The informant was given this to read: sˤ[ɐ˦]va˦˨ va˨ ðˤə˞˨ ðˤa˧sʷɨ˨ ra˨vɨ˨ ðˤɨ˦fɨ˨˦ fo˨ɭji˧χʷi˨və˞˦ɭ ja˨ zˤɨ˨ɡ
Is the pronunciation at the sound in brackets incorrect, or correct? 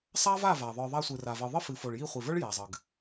incorrect